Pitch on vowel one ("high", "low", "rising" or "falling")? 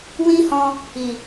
high